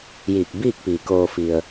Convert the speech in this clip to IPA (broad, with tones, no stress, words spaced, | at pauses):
jiː˧˩k̚biː˥˨k̚piː˩ koː˩ fi˩ə̯